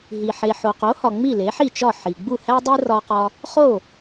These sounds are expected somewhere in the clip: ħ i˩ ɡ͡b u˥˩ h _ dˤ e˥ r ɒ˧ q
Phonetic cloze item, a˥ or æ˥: æ˥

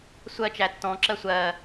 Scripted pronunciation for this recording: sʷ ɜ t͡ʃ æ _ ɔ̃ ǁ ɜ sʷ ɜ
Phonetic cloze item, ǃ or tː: tː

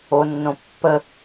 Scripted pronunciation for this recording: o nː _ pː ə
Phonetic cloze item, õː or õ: õ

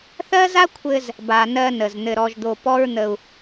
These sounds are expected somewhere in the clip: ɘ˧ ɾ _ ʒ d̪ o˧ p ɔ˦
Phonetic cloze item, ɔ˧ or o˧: ɔ˧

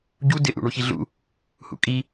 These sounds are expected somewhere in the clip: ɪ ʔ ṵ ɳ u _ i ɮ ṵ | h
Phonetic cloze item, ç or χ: ç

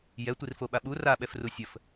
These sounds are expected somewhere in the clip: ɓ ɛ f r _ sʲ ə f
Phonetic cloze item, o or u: u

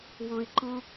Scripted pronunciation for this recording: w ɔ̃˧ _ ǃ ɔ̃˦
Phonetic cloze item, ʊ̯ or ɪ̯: ɪ̯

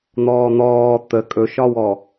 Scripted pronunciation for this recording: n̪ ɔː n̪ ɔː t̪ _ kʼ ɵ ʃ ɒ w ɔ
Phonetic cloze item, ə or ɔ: ə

